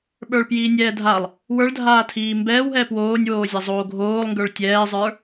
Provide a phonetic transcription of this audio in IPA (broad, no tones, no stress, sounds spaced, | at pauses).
ɓ ə˞ ɭ p j iː nʲ ɛː dʱ a lˠ | w ə˞ ɭ dʱ aː tʰ iː m b ɛː w ɦ ɛː p w oː nʲ w oː zʲ a zˤ oː ɡʱ oː lˠ ŋ ɡ ə˞ ɭ tʲ ɛː zˤ ə˞